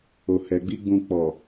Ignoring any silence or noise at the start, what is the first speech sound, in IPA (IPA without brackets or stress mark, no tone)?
o